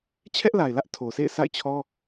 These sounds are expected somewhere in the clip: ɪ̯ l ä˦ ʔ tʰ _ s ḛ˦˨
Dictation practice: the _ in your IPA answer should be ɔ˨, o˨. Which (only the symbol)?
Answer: o˨